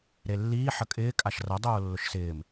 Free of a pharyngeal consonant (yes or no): no